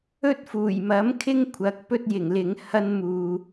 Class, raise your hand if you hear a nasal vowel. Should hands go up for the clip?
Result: no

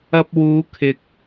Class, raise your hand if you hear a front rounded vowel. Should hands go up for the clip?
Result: no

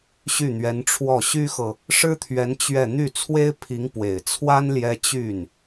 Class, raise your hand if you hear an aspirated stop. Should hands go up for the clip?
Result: yes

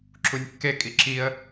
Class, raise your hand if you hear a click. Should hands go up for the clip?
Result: yes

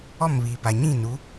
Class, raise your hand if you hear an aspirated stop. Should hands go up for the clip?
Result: no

